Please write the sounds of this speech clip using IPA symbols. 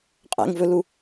qʼ ɛ̰ ŋ v ɵ l u

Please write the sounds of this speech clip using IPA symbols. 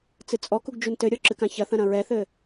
t͡s ɨ t͡sʼ ɔ k u ɡ d͡ʒ u n t ɘ ɾʲ ɔ ǁ ɨ k ã ç ɐ θ ɐ̃ ɾ ɐ̃ ɹ ɛ θ ɘ

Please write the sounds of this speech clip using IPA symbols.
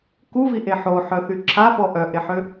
k u v i ʔ e ħ o ħ œ θ y ǁʰ a p ɔ ʔ œ ʔ e ħ ø

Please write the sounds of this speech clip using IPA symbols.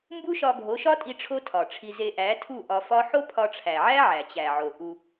m b u˦ ʃ ɒ˧ ɡʱ o˨˦ ʃ ɒ˦ tʼ i˧ ʈ͡ʂʰ o˦ tʰ ɒ˨ ʈ͡ʂʰ i˧ z e˧ ʔ æ˨˦ tʰ u˦˨ ʔ ɒ˧ f ɒ˦ ħ o˦ pʰ ɒ˧ ʈ͡ʂʰ æ˨ ʕ æ˦ ʕ æ˨ t͡ɕ æ˨ ʕ o˨ ʔ u˧

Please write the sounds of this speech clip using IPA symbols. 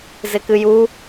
z ɪ k ɨ j u

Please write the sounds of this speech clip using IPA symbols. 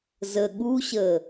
z ə ɠ u ɕ əː

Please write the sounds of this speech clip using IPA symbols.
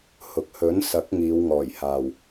h ʊ˨ k̚ h ɵ˨˥ n s ɐ˨˥ k̚ ŋ iː˨˧ w ŋ ɔː˨˩ j h aː˨ w

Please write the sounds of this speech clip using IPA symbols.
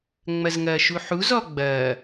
ŋ͡m ɐ z ŋ ɐː ʃ u ħ u z ɔ ɡ͡b ɐː

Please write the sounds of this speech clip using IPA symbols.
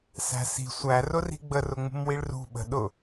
s æ̤ s i̤ sʷ æ r ʊ r i̤ ɡ͡b ə r ʊ ŋ͡m ṳ m w i ɭ r ṳ ɓ ə̤ ɗ ʊ

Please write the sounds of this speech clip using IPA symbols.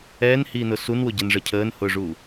ɛː n h iː n ʊ s u n w ʊ ɟ ɛ n ʐ ə cʰ əː n h ʊː ʐ u

